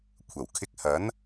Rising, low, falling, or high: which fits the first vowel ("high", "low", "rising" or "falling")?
low